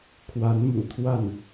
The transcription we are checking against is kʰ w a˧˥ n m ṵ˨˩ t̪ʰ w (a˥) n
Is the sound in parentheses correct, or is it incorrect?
incorrect